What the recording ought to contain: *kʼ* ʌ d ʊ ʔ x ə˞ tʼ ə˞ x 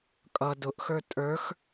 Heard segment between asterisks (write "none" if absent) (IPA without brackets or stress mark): kʼ